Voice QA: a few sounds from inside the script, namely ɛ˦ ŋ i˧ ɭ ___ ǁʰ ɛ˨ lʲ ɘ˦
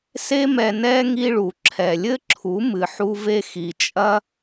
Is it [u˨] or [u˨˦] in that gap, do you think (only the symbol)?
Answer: u˨